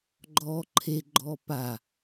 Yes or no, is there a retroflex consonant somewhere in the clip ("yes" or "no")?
no